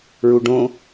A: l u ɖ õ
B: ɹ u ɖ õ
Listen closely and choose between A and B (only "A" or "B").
B